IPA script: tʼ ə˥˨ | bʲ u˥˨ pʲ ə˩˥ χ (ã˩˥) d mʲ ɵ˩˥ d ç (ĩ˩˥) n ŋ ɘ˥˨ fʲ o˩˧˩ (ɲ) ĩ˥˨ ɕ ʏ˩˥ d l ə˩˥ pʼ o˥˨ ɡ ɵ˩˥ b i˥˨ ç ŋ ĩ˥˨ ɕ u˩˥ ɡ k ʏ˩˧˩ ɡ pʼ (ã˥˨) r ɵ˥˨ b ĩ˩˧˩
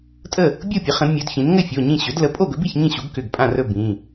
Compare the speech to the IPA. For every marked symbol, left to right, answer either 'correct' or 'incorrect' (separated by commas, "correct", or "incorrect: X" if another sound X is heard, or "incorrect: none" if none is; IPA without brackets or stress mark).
incorrect: ə̃˩˥, correct, correct, correct